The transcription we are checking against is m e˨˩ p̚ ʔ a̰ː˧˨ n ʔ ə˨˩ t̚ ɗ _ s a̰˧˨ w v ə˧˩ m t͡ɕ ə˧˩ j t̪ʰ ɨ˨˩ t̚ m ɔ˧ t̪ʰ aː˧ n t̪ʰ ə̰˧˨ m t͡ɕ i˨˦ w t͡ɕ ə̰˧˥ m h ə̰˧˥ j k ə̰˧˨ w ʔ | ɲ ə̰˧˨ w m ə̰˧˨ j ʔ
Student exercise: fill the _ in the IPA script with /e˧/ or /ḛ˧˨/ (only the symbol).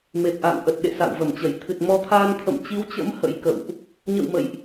ḛ˧˨